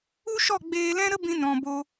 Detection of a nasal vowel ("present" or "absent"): present